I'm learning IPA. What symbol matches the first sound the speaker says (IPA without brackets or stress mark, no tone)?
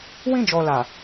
w